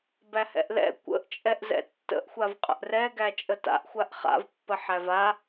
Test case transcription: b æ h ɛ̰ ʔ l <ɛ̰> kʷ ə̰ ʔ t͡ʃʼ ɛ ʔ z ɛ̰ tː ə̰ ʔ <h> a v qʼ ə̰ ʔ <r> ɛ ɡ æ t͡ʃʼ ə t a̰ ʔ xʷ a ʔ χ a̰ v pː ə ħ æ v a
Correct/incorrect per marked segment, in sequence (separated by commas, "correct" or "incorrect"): correct, incorrect, correct